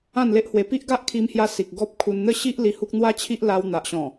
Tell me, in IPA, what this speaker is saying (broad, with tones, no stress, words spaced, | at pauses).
ã˥˧nle˦ʔhwe˧ pi˦ʔɡa˦ʔkʰi˧mhja˧ si˨k̚ɡɔ˦p̚kʰu˧n n̪ə˥˧ɕi˦ʔ li˧hu˦k̚ n̪wa˦t͡ɕʰi˦ʔ la˧wn̪a˨ʔɕɔ̃˨˩